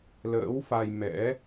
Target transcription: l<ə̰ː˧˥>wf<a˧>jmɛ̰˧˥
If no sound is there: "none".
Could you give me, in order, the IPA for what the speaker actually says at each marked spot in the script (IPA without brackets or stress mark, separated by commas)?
ə̰ː˧˥, a˧